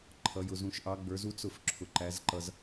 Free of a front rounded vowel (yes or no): yes